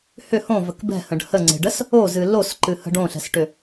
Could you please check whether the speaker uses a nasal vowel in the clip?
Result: yes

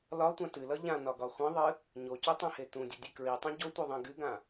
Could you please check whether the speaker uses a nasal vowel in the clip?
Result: yes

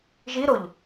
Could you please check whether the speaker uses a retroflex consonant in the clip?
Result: no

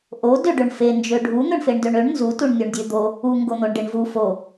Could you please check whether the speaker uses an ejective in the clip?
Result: no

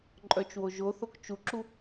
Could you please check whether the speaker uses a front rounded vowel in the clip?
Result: yes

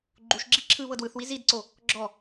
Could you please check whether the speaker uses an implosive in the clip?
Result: no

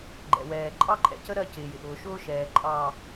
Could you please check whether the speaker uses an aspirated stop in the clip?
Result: no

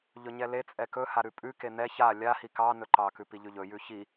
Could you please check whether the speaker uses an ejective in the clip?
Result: yes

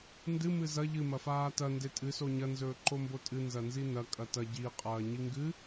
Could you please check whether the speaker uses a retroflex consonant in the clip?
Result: no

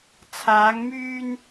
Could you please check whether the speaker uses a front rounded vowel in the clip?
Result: yes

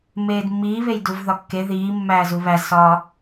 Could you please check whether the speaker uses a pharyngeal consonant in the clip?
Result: no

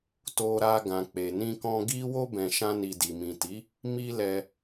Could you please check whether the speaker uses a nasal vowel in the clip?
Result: yes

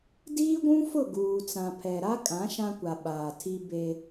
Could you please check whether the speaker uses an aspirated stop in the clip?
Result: yes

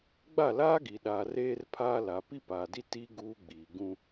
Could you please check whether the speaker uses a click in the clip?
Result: no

